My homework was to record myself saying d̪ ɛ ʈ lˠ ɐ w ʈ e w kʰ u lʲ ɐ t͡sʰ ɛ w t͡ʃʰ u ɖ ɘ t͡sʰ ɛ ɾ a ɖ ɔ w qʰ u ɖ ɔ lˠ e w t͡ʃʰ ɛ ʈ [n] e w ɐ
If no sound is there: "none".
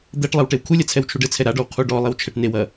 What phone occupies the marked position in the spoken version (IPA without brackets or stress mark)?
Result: n